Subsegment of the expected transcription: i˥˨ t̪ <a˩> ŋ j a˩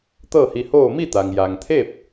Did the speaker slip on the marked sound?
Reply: no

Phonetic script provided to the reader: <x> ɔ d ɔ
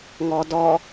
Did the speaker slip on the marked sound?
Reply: yes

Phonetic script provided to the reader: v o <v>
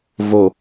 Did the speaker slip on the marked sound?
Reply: yes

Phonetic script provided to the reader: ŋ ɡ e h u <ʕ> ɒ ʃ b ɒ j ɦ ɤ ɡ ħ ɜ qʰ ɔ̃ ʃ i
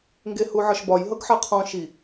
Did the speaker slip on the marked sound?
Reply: no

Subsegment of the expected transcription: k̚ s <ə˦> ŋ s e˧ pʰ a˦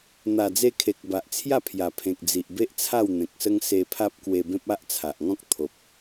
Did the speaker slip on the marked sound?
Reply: no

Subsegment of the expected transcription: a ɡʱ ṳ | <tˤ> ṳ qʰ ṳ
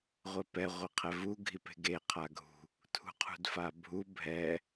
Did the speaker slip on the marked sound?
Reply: yes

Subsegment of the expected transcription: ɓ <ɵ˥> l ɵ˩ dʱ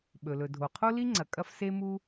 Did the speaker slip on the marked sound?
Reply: yes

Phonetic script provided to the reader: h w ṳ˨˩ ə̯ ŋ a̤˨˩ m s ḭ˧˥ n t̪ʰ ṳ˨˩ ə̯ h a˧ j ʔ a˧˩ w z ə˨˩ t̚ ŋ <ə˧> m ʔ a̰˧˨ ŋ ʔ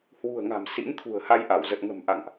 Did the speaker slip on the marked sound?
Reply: yes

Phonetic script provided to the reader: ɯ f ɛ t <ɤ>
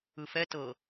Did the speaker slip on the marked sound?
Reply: no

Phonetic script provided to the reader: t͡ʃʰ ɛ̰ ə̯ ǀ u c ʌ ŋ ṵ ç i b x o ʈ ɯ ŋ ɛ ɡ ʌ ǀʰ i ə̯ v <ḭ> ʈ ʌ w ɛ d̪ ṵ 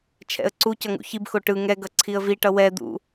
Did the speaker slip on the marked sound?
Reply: yes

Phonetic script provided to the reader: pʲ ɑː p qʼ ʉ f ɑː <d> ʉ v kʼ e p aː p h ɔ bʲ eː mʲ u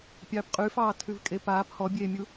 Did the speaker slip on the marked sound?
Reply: yes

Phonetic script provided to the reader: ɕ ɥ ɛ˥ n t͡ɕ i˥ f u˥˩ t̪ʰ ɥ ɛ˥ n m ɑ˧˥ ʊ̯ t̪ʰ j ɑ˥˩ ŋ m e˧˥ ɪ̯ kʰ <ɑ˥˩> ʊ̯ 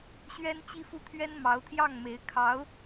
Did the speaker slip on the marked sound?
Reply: yes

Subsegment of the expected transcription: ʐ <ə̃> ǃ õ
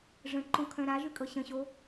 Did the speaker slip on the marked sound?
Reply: no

